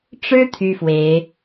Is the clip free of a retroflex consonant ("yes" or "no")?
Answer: no